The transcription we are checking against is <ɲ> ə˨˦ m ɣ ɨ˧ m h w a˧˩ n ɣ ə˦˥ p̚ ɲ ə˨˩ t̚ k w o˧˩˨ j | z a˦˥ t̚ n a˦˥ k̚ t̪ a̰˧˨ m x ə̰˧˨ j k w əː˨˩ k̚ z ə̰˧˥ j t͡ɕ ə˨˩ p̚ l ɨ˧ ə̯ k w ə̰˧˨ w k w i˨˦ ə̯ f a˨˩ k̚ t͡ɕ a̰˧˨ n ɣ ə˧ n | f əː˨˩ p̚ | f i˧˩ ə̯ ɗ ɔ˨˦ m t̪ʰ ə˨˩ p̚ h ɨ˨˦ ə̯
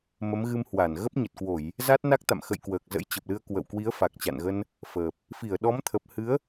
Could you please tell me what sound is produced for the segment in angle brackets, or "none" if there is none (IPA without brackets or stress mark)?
m